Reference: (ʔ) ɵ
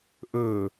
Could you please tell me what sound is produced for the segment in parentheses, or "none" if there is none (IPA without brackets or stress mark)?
ʔ